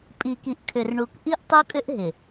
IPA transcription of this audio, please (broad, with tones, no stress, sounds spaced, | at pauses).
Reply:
pʼ i˨ k i˨ ʔ kʰ ʏ˨ r ɳ u˨ k ʔ i˦ ʔ tˤ u˦ kʼ ʏ˦ ʔ ɦ ɪ˨